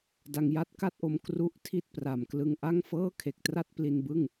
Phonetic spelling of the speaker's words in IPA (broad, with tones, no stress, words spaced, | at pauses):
da˧ŋja˥˩t̚ka˥˩t̚ʔo˧m kru˥˩ʔ tʰi˥˩t̚pra˨˩m klɯ˧ŋʔa˥˩ŋfɤː˥˩ kʰe˨˩k̚tra˥˩t̚ pli˧nbɯ˥˩ŋ